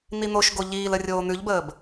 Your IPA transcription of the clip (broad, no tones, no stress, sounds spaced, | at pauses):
n̪ i n̪ o ʃ ɡ o ʎ iː l ə rʲ oː n̪ ʉ ʎ b əː b